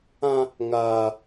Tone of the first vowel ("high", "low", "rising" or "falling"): high